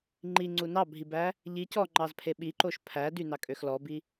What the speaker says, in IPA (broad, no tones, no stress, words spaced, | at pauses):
ŋ͡ǃiŋ͡ǀu nɑbʱibæ | ʎi cɔŋ͡ǃɑzpʰe ɓiǃoʃ pʰæ dynɑkʼøx lɔbi